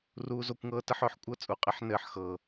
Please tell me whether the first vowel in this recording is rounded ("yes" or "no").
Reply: yes